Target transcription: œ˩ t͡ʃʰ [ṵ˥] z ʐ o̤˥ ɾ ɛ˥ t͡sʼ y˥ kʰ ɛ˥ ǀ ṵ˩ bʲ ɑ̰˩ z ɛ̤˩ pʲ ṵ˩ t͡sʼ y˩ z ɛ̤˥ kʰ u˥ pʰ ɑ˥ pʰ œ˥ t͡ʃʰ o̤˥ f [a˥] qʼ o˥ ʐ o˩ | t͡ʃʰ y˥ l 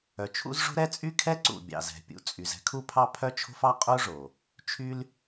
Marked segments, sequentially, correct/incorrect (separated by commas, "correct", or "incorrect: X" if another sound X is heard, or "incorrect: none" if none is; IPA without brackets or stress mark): correct, incorrect: ɑ˥